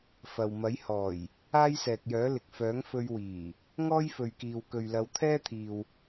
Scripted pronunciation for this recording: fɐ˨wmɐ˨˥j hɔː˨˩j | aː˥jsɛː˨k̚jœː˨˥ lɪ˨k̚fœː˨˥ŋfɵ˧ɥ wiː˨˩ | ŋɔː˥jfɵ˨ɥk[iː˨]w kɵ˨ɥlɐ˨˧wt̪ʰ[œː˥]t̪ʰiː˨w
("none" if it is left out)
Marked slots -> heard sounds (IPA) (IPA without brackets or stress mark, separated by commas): iː˨, ɛː˥